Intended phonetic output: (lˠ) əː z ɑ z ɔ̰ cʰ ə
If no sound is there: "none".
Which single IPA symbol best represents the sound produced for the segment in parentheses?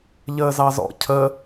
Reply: ʎ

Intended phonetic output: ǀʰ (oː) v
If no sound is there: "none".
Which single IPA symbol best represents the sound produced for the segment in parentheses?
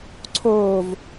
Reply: oː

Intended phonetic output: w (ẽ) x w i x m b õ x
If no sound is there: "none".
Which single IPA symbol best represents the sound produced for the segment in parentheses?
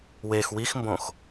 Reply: e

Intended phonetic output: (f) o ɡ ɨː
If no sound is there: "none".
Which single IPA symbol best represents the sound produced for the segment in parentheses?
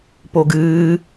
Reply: p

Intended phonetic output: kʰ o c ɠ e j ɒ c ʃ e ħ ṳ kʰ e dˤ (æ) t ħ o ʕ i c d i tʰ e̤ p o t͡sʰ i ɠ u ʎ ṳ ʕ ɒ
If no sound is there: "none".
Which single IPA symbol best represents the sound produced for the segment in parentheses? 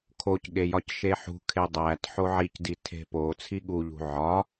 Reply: æ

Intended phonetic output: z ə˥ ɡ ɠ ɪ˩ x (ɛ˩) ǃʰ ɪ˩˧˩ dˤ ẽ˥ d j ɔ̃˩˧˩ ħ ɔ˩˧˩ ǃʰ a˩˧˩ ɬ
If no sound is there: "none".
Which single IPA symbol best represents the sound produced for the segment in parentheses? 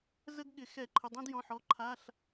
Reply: ɛ˧˩˧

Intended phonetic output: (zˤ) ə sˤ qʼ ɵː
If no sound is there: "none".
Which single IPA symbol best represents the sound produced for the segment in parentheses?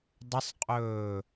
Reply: dˤ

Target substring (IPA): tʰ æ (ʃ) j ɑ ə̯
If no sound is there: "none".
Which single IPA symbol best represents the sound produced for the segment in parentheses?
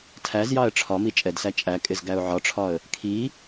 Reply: z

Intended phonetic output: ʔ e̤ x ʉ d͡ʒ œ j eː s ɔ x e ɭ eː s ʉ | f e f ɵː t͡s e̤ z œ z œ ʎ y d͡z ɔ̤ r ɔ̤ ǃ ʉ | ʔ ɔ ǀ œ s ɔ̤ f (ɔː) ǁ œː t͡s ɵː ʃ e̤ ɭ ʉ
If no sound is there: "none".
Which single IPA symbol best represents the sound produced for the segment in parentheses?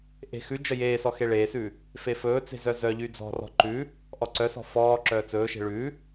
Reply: ɔː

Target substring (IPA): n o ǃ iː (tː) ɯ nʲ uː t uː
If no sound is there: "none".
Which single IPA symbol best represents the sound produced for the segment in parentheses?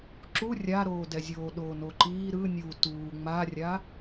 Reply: ɾ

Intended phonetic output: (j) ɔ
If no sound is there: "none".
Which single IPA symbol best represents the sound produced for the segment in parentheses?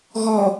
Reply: ɣ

